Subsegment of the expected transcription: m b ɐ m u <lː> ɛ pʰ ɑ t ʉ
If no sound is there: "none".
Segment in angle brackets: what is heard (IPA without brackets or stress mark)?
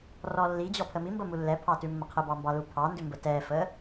lː